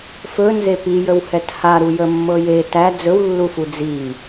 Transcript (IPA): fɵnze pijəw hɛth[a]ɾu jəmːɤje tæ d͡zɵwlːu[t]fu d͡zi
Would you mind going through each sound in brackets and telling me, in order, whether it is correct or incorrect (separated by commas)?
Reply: correct, incorrect